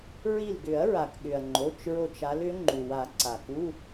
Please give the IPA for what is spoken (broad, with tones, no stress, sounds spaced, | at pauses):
ɹ i˧˩ l ɡ ʏ˨˩˦ ɐ̯ ɹ a˩ k ɠ ʏ˩ ɐ̯ ŋ͡ǃ o˩˧˩ t͡ʃ ɹ o˧˩ t͡ʃ a˨˦ l ʏ˨˦ ŋ͡ǃ u˩ w a˨˩˦ ǀ a˩ k u˧˥˧